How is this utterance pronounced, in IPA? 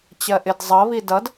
t͡ɕɜʔɪdzˤʌ βidʌd

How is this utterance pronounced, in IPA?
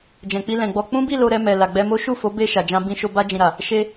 d͡ʒɛ̃˨k͡pi˧lɛ̃˨ɡ͡bɔ˧ k͡pũ˦ bi˦˨ lo˧ɾɛ˧mɛ˨ la˨ɡ͡bɛ˧mo˦ ʃu˦˨fo˨˦ be˦˨ ʃa˨d͡ʒã˧bĩ˧ʃo˧ ba˧d͡ʒĩ˨ɾa˨ | ʃe˧

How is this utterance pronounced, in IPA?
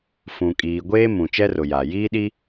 fũ˨ kʼiː˨ ɡʷeː˦ mũ˨ t͡ʃɛ˦rʊ˨ ja˨ jiː˦ɗi˦

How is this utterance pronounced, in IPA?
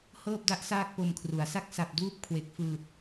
hɤː˥˩p̚da˦˥ʔ saː˥˩k̚po˧mkʰru˩˦a̯ sa˥˩k̚sa˨˩p̚duː˥˩p̚kʰwe˨˩k̚ fɯː˨˩t̚

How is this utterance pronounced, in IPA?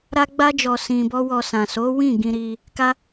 ɾa˦ɡ͡ba˦d͡ʒɔ˧ sĩ˧bɔ˦ wɔ˧ sã˨so˨˦wĩ˦˨ ɡĩ˧ɾi˧ | ka˦

